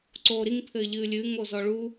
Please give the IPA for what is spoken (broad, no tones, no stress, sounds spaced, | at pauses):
ǀ oː ɾ i ŋ pʰ ɘː ʎ ɨː lʲ ɨː ŋ o z ɔ ɭ u